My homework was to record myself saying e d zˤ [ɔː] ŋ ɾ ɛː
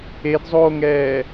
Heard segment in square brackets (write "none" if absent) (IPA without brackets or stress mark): oː